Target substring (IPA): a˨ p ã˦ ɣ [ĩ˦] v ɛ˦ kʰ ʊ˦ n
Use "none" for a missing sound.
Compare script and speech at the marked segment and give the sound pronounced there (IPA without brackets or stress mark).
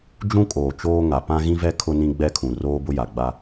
ĩ˦